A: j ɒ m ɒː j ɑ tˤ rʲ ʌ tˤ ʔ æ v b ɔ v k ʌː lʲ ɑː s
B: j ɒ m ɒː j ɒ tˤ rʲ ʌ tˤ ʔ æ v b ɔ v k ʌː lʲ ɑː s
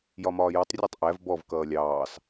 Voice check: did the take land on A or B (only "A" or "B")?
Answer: B